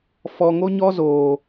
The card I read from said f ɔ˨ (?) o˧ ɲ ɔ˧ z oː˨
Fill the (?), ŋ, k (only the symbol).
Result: ŋ